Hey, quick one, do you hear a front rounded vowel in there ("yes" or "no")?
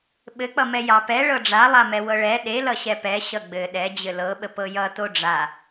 no